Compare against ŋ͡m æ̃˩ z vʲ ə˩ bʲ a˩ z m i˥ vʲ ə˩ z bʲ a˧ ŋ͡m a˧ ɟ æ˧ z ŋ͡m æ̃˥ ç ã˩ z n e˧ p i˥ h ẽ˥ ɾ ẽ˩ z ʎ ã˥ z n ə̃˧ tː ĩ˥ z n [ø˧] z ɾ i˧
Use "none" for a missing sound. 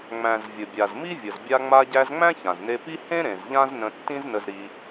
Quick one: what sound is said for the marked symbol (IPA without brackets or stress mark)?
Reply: ə˧